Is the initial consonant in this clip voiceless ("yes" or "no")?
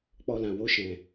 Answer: yes